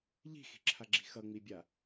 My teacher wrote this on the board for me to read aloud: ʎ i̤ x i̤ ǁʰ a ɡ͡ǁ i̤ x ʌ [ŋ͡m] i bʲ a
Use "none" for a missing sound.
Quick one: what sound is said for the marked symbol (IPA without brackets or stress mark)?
ŋ͡m